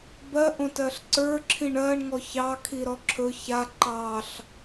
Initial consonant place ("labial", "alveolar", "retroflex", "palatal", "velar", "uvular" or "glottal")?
labial